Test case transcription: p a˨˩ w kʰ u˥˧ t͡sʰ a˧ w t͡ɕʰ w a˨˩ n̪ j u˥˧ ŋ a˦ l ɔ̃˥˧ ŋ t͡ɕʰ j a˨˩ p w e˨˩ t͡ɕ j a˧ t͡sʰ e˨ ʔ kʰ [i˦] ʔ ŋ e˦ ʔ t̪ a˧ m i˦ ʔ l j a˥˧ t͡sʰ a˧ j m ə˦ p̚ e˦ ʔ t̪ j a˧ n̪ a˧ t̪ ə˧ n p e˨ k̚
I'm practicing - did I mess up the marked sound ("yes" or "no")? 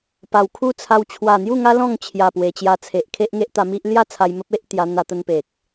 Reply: yes